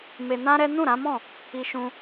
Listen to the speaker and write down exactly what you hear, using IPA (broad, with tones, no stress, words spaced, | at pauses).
me˧nã˦ɾɛ˦ nũ˦˨ɾã˨˦mɔ̃˦˨ | i˧ʃũ˧